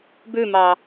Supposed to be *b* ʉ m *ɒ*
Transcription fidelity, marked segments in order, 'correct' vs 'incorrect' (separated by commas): correct, incorrect